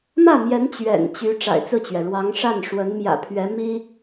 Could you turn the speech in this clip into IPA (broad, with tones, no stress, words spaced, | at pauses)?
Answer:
mä˥˩mjɛ˧˥n t͡ɕɥɛ̰˨˩nt͡ɕy˧˥ ʈ͡ʂa̰˨˩ɪ̯t͡sɹ̩˥˩t͡ɕɥɛ˩ ɻwɑ˧˥ŋʂa˥˩n ʂwə˧˥nmjä̰˨˩pʰɥɛ˧˥ mi˥